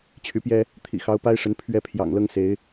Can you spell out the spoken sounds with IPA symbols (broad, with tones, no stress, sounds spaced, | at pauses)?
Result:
t͡ɕʰ y˧˥ p j ɛ˥ | t̪ʰ ḭ˨˩ x ɑ˧˥ ʊ̯ p a˥ ɪ̯ ʂ ə˧˥ n pʰ ɥ ɛ˥˩ pʰ j ɑ̰˨˩ ŋ l ɤ˥ ŋ s e˧˥ ɪ̯